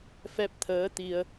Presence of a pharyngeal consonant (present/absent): absent